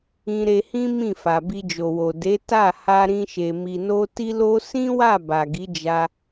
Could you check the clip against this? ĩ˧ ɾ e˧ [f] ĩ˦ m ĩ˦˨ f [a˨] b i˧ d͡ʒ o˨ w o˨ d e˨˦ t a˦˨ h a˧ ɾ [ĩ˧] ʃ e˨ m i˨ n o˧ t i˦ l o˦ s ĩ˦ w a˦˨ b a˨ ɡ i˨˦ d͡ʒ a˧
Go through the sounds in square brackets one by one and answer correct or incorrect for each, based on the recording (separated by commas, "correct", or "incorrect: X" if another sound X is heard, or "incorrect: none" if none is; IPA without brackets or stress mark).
incorrect: h, correct, correct